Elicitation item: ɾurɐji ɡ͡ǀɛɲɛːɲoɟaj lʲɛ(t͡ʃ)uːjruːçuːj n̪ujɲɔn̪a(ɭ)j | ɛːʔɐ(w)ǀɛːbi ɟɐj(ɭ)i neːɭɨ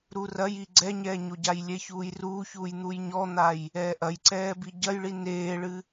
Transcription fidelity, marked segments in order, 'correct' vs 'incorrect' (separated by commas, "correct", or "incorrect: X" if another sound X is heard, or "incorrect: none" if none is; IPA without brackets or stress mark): incorrect: ç, incorrect: none, incorrect: j, correct